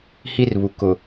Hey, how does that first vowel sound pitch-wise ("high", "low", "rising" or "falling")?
high